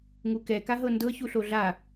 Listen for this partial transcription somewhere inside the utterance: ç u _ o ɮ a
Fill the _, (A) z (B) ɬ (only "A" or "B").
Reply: B